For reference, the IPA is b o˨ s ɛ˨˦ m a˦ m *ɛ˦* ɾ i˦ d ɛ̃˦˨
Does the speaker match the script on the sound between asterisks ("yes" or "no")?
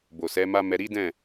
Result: no